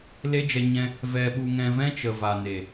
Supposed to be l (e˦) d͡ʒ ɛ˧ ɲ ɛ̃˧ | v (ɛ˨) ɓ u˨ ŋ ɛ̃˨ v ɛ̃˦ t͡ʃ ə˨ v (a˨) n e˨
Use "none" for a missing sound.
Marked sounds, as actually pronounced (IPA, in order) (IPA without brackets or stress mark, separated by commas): e˦, ɛ˨, a˨